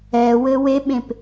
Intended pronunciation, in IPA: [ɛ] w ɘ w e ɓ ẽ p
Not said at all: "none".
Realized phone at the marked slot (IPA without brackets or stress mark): ɛ